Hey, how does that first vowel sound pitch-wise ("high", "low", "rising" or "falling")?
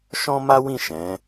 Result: high